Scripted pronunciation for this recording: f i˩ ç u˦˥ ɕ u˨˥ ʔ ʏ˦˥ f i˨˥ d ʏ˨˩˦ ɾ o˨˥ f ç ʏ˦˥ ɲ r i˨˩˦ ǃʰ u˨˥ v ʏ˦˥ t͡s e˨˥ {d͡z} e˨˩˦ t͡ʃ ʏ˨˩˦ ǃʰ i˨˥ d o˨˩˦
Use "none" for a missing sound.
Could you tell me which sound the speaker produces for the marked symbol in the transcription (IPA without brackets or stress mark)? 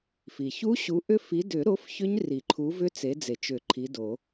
d͡z